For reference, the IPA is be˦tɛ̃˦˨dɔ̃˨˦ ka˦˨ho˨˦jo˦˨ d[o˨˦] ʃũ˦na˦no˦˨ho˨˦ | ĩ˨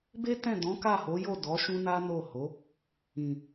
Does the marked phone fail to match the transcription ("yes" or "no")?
yes